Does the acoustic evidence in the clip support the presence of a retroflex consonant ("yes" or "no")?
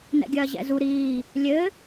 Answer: no